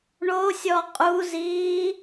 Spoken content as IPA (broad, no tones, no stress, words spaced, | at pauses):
ɳosʲɔ qʼuziː